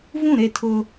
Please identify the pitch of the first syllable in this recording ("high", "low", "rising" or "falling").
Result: falling